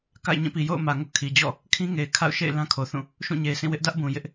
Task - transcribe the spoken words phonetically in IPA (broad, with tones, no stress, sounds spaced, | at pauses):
k a̰˦˨ ɪ̯ ɲ ĩ˦˨ p i˨ j o̰˦˨ ʊ̯ m ä˨ ŋ o̰˦˨ kʰ i˨ d͡ʑ ɔ̰˦˨ | kʰ ĩ˦ ŋ e˨ ɪ̯ kʰ a̰˦˨ ʊ̯ ʃ ḛ˦˨ ɪ̯ l ã˦ kʰ o˨ θ ũ˦˨ | ʃ ũ˦˨ ɲ e˨ ɪ̯ sʰ ĩ˦˨ w ɪ˦ ʔ d ä˦ ʔ b ũ˨ j ɪ˦ ʔ